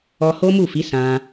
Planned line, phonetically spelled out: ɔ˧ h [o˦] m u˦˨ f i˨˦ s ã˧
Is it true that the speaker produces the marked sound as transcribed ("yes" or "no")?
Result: yes